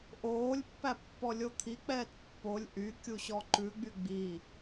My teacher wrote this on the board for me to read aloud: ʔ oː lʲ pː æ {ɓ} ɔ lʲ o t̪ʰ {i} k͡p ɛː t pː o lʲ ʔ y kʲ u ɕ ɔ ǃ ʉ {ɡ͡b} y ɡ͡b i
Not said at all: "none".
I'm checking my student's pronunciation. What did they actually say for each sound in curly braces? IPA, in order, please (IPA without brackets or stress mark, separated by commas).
pː, i, ɡ͡b